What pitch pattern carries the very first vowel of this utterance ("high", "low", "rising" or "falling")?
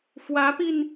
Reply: rising